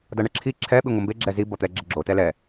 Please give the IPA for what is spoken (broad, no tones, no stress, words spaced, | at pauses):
dʌɳɛǁʰi ǁʰɛ ɓiŋʷʌmbe ɡ͡ǁɛzi bʌt̪ɛɡ͡ǁɪɡ͡ǁo tɛlɛ